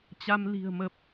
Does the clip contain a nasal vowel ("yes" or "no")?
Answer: no